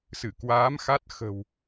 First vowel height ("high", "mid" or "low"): high